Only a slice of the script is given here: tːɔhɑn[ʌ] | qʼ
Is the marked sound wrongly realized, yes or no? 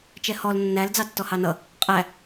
no